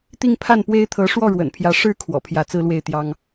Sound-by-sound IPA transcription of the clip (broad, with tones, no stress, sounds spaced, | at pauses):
t̪ i˥˧ ŋ pʰ a˥˩ n p w e˥ ɪ̯ t̪ʰ ɤ˧˥ ʂ w ɔ˥˩ ɻ w ə̰˨˩ n pʰ j ä˧˥ ʂ ɻ̩˥ kʰ w ɔ̰˨˩ pʰ j ä˧˥ t͡s ɹ̩˥ l w e˥˩ ɪ̯ t̪ j ɑ˥ ŋ